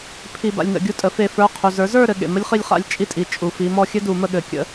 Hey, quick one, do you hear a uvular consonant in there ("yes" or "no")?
yes